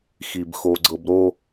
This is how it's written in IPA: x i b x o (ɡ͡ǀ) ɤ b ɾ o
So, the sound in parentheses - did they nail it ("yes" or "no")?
yes